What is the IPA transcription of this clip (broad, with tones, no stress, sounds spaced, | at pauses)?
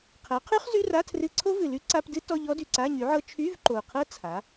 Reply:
qʰ æ˩˥ qʰ y˦˥ χ z y˧˥˧ r a˧˥˧ tʰ r ɨ˧˥˧ ǀʰ o˦˥ v ɨ˨˩ l y˦˥ ǀ a˧˥˧ p d ɨ˦˥ t ɔ˧˥˧ ʎ ɔ˦˥ d y˨˩ ǀ a˧˥˧ ɲ y˩˥ ʕ ɤ˦˥ t͡ʃʰ y˧˥˧ v ǃ o˨˩ qʰ ɤ˦˥ t͡sʰ a˩˥